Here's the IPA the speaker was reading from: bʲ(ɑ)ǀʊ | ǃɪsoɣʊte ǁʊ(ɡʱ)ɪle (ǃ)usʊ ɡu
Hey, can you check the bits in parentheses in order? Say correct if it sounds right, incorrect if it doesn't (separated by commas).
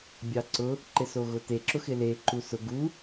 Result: correct, incorrect, correct